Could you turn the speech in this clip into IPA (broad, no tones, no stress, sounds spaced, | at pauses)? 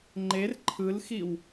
ŋ͡ǃ e r ǃʰ ɯ l x i w